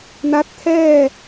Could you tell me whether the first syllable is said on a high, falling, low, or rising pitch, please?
rising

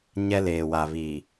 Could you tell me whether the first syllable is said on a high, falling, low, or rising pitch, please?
high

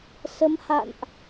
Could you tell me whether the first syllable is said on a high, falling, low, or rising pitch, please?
rising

